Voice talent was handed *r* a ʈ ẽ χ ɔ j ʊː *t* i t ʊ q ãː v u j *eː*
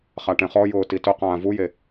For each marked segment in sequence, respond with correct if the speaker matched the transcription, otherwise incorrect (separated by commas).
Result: incorrect, correct, incorrect